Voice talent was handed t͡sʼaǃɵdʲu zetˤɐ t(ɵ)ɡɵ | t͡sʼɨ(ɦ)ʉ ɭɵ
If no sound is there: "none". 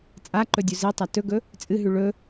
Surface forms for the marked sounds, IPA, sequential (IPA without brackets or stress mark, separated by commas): ɵ, ɦ